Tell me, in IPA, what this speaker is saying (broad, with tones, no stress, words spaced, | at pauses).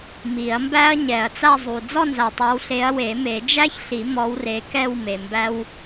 mi˨˩˦ɐ̯mbæ˥ɐ̯ ɲɛ˨˩˦ɐ̯t͡sa˥˧zˤu˨ d͡zɔ˥˧nza˨tˤa˨˦wɬe˨˦ɐ̯ we˨˩˦me˨˩˦d͡ʒæ˥çɬi˨˩˦ mɔ˨˦wre˨˦ kɛ˥˧wme˨mbæ˥w